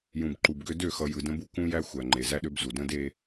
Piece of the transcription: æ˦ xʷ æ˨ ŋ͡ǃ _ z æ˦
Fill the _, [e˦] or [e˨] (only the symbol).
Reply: e˨